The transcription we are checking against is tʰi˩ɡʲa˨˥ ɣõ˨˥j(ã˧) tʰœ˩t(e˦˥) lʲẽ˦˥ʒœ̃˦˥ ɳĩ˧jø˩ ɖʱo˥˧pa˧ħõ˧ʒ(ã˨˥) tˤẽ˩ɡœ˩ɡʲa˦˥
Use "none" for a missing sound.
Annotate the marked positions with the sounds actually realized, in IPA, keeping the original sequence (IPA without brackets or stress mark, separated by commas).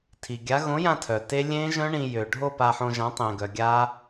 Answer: ã˧, e˦˥, ã˨˥